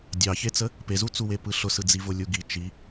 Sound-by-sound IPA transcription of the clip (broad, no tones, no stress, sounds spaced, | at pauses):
dʲ ɑ ç e t͡s ə | p e z u t͡s u w e p ɯ ɬ ʊ s ɯ d͡z i v ʊ lʲ u ɡ i t͡ʃ i